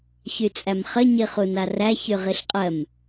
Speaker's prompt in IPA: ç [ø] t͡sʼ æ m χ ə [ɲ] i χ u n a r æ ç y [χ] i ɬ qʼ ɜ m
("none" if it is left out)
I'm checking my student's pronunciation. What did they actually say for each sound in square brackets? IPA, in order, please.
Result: y, ɲ, ʁ

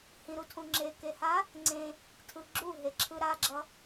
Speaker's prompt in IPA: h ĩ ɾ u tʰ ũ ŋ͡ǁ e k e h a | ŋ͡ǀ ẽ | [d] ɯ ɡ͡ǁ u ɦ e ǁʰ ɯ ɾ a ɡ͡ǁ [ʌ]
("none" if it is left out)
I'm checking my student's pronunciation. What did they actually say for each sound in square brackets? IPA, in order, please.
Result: tʰ, ʌ

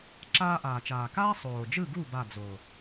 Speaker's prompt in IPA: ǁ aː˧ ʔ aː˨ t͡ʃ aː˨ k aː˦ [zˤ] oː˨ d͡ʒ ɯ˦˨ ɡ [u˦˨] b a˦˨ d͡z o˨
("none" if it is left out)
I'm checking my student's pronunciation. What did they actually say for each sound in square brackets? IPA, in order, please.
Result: sˤ, u˦˨

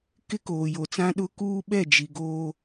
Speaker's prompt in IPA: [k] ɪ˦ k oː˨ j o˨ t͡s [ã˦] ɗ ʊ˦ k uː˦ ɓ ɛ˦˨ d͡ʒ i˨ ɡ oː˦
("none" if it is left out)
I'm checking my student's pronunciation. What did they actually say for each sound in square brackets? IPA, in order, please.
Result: k, ã˦

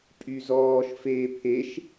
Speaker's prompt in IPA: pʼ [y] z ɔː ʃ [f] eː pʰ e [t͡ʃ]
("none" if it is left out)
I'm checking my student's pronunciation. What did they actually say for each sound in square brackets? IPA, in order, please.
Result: y, f, ʃ

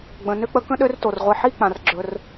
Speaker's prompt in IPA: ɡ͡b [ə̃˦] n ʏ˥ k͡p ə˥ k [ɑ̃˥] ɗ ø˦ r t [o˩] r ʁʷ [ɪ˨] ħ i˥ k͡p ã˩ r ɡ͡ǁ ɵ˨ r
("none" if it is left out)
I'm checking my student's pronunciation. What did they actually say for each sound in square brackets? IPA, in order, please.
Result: ə̃˨, ə̃˥, o˩, i˨

